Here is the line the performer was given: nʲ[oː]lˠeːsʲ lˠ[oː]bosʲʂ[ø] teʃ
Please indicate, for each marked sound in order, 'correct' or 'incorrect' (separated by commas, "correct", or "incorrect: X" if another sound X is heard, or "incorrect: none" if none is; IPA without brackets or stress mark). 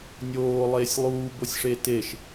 correct, incorrect: uː, incorrect: e